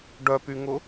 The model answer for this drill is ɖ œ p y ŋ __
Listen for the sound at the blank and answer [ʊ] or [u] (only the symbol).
ʊ